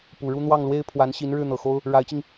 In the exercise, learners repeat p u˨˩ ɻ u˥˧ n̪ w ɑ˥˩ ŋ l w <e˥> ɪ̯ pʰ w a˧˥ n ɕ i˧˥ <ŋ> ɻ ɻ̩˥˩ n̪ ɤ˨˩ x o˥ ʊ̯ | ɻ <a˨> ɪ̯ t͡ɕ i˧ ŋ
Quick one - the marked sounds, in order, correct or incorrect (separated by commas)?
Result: correct, incorrect, incorrect